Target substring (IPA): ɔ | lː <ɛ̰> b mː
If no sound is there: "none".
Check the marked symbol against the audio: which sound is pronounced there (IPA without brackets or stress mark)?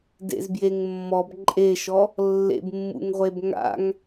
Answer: ḛ